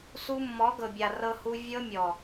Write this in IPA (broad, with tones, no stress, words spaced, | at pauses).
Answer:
su˧mːɔ˨˦ɡɤ˨bʲa˨ rɤ˧hu˧ vʲɤ˧ mʲɔ˨